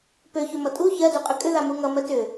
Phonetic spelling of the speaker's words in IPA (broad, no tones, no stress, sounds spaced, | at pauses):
p ø ç ø m ʌ tʼ u ç ɜ d u qʼ ʏ kʼ ʏ ð a m u ŋ ʌ m ɜ t ʏ